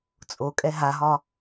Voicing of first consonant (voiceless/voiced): voiceless